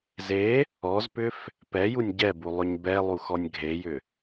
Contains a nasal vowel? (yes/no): no